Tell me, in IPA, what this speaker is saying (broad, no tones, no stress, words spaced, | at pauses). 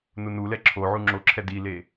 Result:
nunulɛ ǁʰo ʕuŋ͡ǁoǁʰɛ dile